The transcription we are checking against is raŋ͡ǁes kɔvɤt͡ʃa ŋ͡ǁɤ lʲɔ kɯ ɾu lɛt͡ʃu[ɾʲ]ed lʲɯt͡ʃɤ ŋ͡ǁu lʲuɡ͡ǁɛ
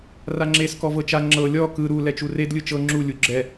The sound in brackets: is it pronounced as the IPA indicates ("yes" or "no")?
no